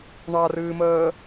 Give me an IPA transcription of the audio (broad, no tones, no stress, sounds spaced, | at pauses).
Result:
ɳ ɑ r ɨː m əː